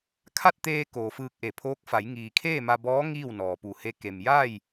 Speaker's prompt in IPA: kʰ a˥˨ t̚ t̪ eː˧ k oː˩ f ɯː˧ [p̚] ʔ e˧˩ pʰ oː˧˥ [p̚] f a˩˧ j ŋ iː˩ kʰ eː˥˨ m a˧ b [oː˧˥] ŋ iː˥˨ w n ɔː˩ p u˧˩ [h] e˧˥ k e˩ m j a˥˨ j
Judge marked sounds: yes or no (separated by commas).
no, no, no, yes